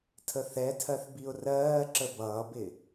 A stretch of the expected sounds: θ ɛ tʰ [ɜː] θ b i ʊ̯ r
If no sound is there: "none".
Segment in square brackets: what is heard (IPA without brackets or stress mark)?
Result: ɜ